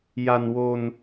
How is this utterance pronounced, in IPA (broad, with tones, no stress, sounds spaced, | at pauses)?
j a˧ n w o˧ n